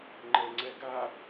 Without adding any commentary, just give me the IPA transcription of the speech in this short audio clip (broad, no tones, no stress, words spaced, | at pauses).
ŋ͡ǃɛŋ͡ǀɛɡa